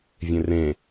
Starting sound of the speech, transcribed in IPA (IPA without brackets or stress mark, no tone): vʲ